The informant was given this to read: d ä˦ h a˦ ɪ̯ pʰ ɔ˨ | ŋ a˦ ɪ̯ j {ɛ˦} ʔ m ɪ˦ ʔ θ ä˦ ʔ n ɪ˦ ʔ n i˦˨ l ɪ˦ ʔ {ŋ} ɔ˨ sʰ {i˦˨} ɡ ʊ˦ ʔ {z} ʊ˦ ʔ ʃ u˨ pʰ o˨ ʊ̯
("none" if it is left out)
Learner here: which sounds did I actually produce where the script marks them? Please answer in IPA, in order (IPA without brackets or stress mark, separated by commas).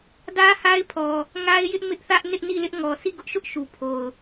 ɪ˦, ŋ, i˦˨, ʃ